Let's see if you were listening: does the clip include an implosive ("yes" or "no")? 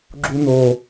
no